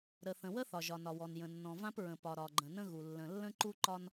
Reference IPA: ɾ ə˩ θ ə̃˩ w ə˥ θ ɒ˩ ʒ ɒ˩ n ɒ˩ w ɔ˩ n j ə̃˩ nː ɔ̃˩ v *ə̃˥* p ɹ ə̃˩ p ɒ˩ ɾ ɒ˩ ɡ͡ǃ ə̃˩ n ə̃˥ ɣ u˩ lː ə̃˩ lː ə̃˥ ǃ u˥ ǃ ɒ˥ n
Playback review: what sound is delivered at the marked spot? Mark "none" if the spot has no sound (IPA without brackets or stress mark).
ã˥